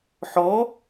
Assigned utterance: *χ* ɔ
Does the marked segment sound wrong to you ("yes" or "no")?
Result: yes